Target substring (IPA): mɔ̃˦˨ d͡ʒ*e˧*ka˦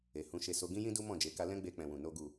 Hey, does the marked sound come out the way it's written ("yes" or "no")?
yes